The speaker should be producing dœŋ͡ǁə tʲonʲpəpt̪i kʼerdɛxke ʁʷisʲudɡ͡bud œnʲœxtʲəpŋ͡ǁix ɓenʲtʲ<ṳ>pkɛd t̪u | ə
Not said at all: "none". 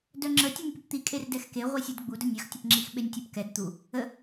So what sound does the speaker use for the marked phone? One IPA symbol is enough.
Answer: u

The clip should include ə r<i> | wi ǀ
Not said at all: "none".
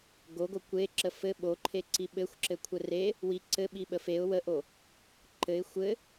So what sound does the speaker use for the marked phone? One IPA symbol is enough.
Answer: e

